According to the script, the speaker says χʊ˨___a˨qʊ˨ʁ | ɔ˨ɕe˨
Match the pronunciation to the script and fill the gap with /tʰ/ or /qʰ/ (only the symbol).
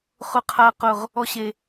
qʰ